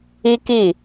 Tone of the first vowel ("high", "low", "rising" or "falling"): high